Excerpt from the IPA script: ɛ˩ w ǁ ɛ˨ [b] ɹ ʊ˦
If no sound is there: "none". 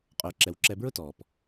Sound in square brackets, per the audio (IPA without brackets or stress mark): b